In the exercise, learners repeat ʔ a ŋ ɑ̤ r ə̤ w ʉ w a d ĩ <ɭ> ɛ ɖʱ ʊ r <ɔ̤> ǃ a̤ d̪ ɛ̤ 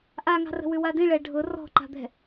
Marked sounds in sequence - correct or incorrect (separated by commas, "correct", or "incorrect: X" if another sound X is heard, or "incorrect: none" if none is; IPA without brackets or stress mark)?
correct, correct